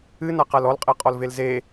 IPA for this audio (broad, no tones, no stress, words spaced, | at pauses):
ɨnaqal ɔlqʼɛqʼɔlvel ze